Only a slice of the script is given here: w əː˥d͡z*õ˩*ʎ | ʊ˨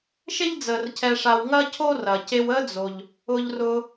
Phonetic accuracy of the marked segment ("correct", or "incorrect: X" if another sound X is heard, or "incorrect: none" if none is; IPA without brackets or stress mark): incorrect: o˩